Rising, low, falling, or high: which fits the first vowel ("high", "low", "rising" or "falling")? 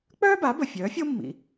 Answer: high